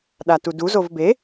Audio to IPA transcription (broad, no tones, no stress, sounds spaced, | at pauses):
ɗ a t u d u z o v b e